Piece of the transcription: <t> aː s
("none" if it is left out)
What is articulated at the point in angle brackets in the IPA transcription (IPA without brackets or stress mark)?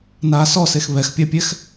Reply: n